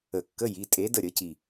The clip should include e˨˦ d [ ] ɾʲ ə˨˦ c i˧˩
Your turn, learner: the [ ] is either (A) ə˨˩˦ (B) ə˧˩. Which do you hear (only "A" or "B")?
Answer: B